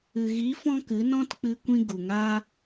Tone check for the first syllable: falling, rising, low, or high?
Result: low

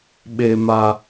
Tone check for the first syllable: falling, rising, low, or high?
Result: high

